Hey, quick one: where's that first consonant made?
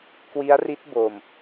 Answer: velum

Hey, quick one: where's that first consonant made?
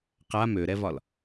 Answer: uvula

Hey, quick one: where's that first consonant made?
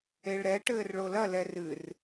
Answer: retroflex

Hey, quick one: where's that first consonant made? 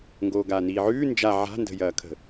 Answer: velum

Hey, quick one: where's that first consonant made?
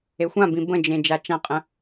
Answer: velum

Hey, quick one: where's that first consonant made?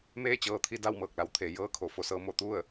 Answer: lips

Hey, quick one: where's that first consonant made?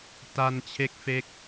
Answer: tongue tip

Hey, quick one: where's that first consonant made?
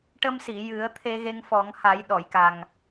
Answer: retroflex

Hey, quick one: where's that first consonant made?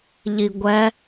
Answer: palate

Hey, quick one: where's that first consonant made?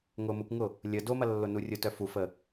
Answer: velum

